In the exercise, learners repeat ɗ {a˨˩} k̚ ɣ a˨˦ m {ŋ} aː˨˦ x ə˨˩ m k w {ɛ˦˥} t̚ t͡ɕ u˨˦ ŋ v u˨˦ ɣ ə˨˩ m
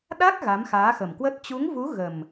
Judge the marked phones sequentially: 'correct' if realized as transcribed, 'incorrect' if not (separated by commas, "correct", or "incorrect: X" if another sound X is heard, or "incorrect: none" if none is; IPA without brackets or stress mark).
incorrect: a˦˥, incorrect: x, incorrect: ə˦˥